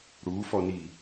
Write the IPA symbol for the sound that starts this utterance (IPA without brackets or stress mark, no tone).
ɽ